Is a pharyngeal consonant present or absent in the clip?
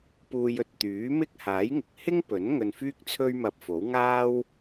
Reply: absent